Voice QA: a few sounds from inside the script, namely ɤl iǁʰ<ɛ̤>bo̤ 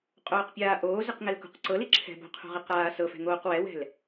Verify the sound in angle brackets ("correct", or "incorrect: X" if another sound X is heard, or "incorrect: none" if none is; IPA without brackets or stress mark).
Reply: correct